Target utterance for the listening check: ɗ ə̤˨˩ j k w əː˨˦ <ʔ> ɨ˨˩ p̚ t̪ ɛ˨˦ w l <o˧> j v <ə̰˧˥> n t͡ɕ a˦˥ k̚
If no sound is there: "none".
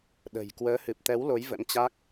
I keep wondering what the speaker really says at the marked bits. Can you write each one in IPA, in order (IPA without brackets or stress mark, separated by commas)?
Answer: h, o˨˦, ə̰˧˥